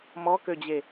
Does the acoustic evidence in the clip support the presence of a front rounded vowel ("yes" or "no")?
yes